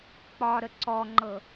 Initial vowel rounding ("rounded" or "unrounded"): rounded